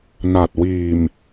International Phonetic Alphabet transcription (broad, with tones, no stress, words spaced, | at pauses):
na˨˩t̚ wiː˨˩m